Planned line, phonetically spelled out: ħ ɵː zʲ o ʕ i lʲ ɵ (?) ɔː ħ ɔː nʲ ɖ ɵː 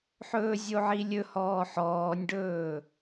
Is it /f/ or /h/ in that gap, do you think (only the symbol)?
h